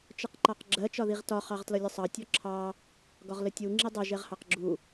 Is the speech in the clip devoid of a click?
no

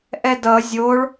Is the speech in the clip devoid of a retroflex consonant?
no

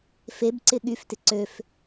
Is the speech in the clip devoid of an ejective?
yes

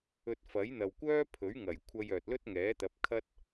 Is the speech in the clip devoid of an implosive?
yes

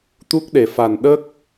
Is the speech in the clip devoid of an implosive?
no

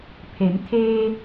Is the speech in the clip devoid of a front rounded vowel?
yes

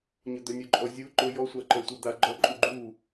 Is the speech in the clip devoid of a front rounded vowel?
no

